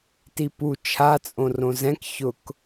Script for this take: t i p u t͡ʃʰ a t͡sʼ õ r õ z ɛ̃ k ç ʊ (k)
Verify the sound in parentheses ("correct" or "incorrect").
correct